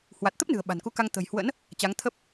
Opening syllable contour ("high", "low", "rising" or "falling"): low